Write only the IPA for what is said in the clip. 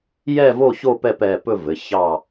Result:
j ɛ˦˨ v o˦˨ ç o˦˨ p ɛ˦˨ p ɛ˩˧˩ p ɵ˦˨ v ɘ˩˧˩ ç ɑ˦˨

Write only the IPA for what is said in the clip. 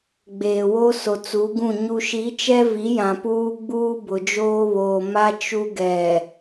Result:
ɡ͡b eː˨ w o˦ s o˨ t͡s u˨˦ ɡ ũ˦˨ ɲ u˨ ʃ i˨˦ t͡ʃ ɛ˦ v i˨˦ j ã˨ p uː˦ ɡ͡b uː˦ b ʊ˨ d͡ʒ oː˦ β oː˨ m a˦ t͡ʃ u˦ ɡ ɛ˨

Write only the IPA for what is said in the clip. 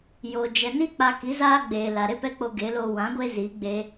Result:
j o˨ d͡ʒ ɛ˨ n i˦ k͡p a˧ k i˨˦ z aː˦ ɡ͡b eː˨ l a˨ ɾ e˦ p ɛ˦ k͡p o˧ ɡ e˨˦ l o˧ w ã˨˦ ɡʷ e˦ z i˨˦ ɡ͡b e˧

